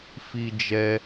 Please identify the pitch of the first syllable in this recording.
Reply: high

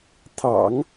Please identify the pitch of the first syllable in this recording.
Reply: low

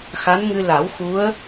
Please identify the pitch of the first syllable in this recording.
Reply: rising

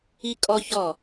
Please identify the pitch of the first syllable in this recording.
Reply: high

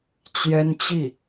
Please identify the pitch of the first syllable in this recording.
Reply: high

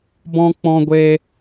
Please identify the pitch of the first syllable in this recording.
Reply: high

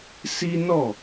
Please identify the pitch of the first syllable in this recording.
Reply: high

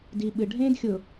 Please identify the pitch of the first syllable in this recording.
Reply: low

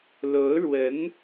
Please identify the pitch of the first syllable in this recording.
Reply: rising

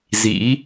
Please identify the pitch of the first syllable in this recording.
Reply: rising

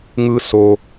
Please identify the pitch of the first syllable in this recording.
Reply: high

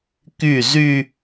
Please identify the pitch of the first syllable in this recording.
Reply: falling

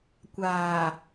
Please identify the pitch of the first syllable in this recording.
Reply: low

